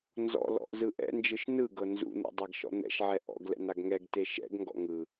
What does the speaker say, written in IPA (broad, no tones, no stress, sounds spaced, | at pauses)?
n z ɔ̰ l ɔ̰ ʔ z ɯ ʔ ɛ̰ n d͡ʒ ɯ ʃ n ɯ ɡ ɤ n z ṵ n̪ ṵ dˤ a ɡ ʃ ɔ̰ n̪ ɛ̰ ʃ ʕ ɛ ʔ ɔ̰ ɡ l ɛ̰ n a ɡ ŋ ɛ ɡ t e ʃ ɛ̰ ɡ ŋ ɡ ɔ̰ ŋ ɯ